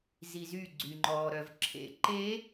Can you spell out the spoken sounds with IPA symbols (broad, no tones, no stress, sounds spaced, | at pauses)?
z i z y ɡ͡ǀ y ŋ͡ǃ ɔː ɾ œ v ǁʰ ḛ ǃ e